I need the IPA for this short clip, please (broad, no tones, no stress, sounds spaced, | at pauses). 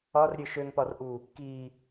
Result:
ɒ r ɾʲ ø ʃ ø ŋ p ɒ r ʔ u | k i